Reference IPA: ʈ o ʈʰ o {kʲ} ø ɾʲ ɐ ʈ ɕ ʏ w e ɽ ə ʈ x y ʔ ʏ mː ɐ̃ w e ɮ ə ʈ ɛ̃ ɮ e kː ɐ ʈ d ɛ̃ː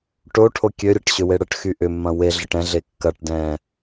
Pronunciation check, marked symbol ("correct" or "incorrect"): correct